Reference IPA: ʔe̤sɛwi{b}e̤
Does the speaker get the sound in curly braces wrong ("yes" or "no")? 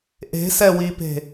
yes